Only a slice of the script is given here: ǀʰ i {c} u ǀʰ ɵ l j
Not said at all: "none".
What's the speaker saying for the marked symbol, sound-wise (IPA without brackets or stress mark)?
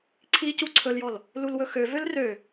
c